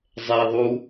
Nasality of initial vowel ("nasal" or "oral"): oral